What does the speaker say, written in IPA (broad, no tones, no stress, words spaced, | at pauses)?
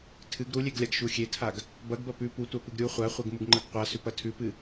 tʰɨɡ ɾulʲeɡlʲaɡ ʃuxʲetʰaɡ | bɐɡbɐ pʉ putʷapɨɡ ɾʲu χʷaχʷeɡmuɡŋ͡ǃɐɡ qʷasʉpɐ tʰʉpɨ